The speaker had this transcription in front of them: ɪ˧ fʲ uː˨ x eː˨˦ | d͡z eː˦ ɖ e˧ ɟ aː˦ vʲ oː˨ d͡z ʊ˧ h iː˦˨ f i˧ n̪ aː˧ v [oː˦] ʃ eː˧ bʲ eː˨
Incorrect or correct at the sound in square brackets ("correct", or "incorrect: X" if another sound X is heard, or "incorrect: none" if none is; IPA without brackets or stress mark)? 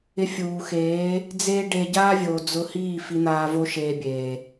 incorrect: o˦